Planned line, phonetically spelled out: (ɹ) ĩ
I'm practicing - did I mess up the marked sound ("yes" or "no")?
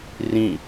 yes